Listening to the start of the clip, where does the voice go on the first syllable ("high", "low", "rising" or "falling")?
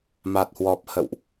low